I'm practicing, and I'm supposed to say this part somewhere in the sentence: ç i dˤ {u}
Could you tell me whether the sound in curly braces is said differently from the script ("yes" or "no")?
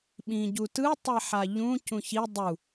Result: no